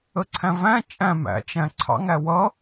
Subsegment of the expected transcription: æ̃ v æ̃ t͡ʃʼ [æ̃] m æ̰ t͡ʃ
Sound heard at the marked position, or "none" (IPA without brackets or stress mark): æ̃